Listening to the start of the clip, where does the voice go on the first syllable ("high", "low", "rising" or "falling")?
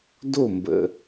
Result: falling